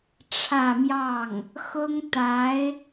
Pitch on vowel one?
falling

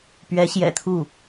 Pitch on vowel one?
rising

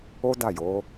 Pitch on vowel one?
high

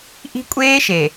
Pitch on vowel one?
high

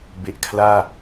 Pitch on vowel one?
low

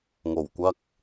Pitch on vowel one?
low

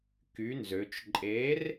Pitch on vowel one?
rising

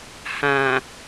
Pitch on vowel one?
low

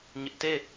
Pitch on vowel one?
high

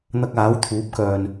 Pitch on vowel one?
high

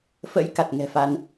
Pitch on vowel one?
rising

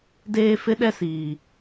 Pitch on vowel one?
high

